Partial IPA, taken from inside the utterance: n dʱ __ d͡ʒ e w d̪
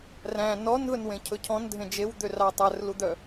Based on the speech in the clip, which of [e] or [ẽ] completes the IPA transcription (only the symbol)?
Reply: ẽ